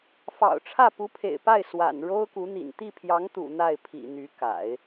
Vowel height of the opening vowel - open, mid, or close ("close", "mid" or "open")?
open